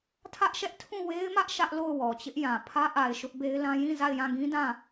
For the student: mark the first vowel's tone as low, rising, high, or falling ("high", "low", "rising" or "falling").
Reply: high